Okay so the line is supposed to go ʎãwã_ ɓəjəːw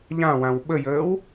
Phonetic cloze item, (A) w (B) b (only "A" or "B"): A